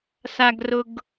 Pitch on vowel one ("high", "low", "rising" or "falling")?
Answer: low